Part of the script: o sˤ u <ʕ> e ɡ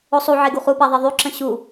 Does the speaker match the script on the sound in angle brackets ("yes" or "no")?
yes